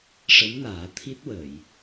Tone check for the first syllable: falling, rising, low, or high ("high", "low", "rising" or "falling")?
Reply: rising